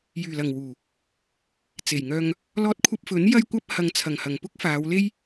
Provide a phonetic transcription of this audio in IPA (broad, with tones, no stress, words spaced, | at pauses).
jyː˨˩ lɐ˨˩ŋwuː˨˩ | t͡se˨˩jŋœː˧ŋ | lɔː˧t̚kʷʰɐ˧p̚fɵ˨˥n jɐ˧jkʷɐ˧p̚ hɐ˨ŋt͡sʰɐ˨˩ŋhɐ˨˩ŋ pʊ˥k̚faː˨˧wle˥j